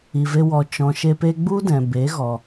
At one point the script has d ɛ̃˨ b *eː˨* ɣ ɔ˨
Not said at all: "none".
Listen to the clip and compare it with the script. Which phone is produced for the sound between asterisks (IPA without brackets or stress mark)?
eː˨˦